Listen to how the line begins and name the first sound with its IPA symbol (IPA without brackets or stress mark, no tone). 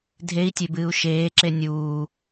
dʱ